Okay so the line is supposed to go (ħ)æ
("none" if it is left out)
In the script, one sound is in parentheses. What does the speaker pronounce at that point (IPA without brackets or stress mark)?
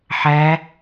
ħ